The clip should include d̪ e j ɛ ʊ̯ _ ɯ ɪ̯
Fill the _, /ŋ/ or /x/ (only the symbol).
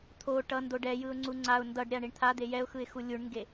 x